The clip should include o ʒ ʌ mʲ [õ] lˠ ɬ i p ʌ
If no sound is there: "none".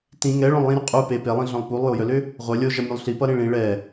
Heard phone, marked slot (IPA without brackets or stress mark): o